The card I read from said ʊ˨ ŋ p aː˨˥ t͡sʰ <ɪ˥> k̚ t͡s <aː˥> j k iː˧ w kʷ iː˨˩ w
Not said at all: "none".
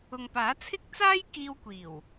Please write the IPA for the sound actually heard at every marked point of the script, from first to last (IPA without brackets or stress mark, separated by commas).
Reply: ɪ˥, aː˥